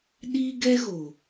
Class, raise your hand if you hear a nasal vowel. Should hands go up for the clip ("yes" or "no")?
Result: no